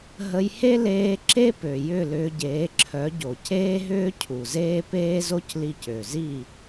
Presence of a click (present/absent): present